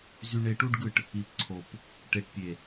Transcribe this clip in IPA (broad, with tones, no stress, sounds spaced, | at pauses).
z y˧ ɳ e˧ ʈ u˦ ɖ ɡ ɯ˦˨ ʈ | i˨ p ǀʰ o˨ p | ʈ e˨ ʈ pʲ e˨